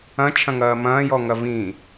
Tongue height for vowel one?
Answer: low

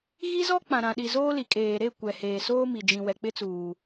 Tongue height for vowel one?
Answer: high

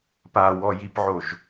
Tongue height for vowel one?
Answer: low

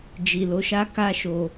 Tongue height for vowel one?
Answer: high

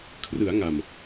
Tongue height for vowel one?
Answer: high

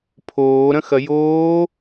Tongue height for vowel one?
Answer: mid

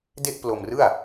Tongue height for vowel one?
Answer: mid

